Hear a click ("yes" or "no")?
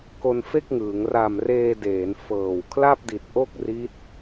no